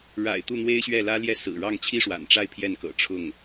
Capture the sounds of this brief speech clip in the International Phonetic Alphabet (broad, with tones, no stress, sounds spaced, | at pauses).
ɻ a̰˨˩ ɪ̯ t̪ u˥˩ n̪ w e˥ ɪ̯ ɕ ɥ ɛ˥˩ l ä˥ l j ɛ˥˩ s ɹ̩˨˩ ɻ ɑ˥˩ ŋ t͡ɕʰ i˥ ʂ w a̰˨˩ n ʈ͡ʂ a˥˧ ɪ̯ pʰ j ɛ˥˩ n k ɤ̰˨˩ ʈ͡ʂʰ ʊ˥˩ ŋ